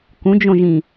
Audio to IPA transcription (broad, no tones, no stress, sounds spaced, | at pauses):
k ũ d͡ʒ õ ʒ ĩ